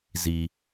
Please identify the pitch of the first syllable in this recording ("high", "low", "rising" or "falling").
low